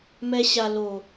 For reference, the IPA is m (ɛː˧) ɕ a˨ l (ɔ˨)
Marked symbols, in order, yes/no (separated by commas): no, no